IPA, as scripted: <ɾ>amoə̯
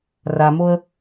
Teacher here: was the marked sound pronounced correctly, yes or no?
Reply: no